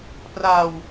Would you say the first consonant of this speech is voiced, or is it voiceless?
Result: voiceless